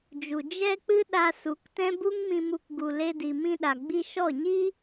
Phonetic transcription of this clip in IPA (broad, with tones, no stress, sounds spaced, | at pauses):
d͡ʒ u˨ d͡ʒ ɛ˦ k͡p ɨ˦ ɗ a˧ s u˨˦ k t ɛ̃˦ b u˦ ŋ m ĩ˧ m u˧ k ɡ u˨ l e˧ d i˨ m ĩ˧ ɗ a˨ ɡ͡b i˧ ʃ ɔ˦˨ ɲ i˦